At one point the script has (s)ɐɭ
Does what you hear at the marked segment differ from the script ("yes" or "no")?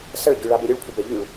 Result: no